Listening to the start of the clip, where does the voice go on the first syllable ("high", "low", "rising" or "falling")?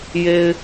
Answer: low